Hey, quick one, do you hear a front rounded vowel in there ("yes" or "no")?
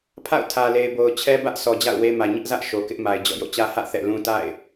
no